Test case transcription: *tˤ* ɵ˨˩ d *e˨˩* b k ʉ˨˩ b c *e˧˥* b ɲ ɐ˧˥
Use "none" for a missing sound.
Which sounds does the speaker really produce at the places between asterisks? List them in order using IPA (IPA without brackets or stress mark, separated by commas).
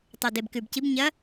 tˤ, e˨˩, i˧˥